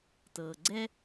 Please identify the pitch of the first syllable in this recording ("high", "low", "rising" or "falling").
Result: low